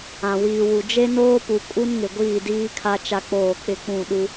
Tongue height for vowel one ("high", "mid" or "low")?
low